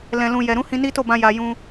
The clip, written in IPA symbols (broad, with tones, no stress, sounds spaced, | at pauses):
l ɛ̃˨ l ũ˨ j ɛ˨ ɾ ũ˨˦ h ĩ˧ n i˦ t o˦˨ b ã˧ j a˨ j ũ˧